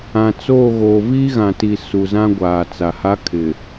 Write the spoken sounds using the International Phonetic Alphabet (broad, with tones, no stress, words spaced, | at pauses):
ã˨t͡soː˦˨ɣo˨ viː˦ ɣã˨ti˨ su˨zã˦ɡʷaː˨t͡sa˨ ha˦kʰɪ˨